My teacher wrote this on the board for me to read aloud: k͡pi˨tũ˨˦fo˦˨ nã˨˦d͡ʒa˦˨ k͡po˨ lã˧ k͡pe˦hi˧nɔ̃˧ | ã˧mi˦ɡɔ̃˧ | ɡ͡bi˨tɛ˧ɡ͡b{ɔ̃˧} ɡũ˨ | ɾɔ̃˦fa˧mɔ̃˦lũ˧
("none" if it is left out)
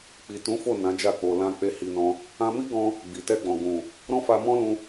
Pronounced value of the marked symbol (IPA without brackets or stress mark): ɔ̃˨